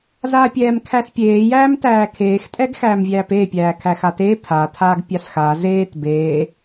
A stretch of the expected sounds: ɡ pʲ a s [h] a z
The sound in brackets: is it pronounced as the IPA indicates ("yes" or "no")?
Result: no